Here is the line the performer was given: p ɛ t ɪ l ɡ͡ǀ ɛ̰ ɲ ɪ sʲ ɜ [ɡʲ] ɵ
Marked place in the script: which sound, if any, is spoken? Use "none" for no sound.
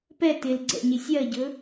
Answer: ɟ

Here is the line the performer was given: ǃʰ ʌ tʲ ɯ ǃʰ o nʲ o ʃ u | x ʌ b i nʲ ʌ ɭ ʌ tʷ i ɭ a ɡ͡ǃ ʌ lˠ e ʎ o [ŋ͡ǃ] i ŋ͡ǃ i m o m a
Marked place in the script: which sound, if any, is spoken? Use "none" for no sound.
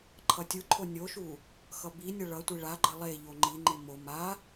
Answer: ŋ͡ǃ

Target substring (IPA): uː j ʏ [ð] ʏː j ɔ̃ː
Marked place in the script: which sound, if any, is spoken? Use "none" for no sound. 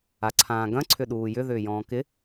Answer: ð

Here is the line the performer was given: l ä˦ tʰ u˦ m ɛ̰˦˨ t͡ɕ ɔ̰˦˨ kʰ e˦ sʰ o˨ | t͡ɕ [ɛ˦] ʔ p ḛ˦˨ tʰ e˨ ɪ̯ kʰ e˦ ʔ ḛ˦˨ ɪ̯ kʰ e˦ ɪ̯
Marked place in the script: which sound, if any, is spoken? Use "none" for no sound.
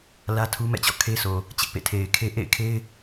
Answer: ɪ˦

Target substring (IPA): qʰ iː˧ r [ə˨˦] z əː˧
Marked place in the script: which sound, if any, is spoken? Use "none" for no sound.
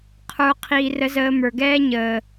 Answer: ə˧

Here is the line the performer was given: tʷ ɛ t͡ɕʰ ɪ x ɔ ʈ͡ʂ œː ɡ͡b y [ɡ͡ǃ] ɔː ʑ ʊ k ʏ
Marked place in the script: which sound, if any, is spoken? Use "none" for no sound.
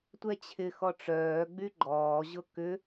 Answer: ɡ͡ǃ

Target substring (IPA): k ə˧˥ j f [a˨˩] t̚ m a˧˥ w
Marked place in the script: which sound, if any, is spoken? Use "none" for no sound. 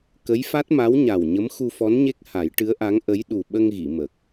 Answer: a˦˥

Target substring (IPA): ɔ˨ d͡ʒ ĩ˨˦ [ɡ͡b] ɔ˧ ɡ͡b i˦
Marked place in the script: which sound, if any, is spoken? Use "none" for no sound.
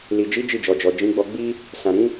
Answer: ɡ͡b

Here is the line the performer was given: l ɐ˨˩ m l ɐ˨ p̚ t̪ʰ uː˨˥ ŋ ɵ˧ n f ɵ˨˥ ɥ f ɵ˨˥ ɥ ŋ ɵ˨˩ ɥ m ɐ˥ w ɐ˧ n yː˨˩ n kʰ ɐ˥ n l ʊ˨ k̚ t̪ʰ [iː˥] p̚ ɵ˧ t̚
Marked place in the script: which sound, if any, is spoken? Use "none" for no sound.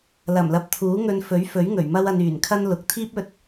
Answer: iː˥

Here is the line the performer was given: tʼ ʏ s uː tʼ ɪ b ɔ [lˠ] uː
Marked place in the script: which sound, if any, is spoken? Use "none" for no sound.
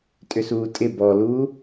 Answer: l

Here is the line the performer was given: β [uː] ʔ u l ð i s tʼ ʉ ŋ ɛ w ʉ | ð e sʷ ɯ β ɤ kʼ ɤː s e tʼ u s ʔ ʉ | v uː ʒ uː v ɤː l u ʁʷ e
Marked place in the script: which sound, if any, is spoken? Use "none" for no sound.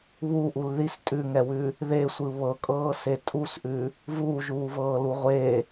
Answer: u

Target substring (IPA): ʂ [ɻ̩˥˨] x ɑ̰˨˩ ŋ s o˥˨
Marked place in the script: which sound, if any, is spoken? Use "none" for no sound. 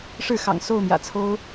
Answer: ɻ̩˥˨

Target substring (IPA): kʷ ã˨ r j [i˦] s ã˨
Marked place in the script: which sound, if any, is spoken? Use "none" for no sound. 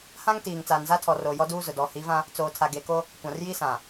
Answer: i˦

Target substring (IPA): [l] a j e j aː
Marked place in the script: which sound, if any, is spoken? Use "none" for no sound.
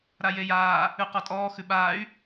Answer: ɾ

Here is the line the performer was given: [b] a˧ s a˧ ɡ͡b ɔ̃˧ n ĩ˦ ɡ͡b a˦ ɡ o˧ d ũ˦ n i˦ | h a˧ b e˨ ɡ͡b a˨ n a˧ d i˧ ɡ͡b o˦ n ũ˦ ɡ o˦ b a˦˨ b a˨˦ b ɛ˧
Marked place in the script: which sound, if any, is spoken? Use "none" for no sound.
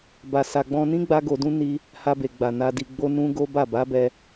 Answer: b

